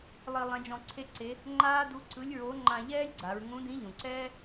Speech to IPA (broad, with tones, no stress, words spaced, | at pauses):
lˠi˧ lˠɛ̃˧˥d͡ʒɔ̃˧ǀʰe˥ǀe˧˥ | ŋ͡ǃaː˥ du˧˥ ǀɯ˧˥lʲɹo˧˥ ŋ͡ǃã˧ʎɛː˥lʲɡ͡ǀa˩˧ɹ ŋũ˧˥dĩ˧˥ʎũ˩ǀɛː˥